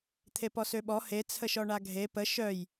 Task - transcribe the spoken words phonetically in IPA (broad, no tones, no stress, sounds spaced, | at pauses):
t̪ʰ e p ɔ s ø ɓ ɔ h e t͡sʰ ə ʃ ɔ ɳ a ɡʱ e p ə ʃ œ j